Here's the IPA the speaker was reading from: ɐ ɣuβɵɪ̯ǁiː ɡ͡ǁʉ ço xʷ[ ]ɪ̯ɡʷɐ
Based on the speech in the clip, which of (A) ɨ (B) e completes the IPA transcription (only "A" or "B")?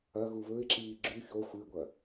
A